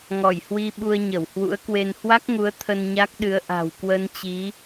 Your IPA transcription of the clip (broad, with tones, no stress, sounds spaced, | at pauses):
ŋ ɔ˧˩ j h w i˧ ɓ u˧ ə̯ ɲ ə˧˩ w h w ṵ˧˥ ə̯ k w e˧ n h w a˦˥ k̚ ŋ u˨˦ ə̯ t̪ʰ ə˧ n ɲ a˦˥ k̚ ɗ ɨ˨˦ ə̯ ʔ a̤˨˩ w k w ə˧ n t͡ɕ i˨˦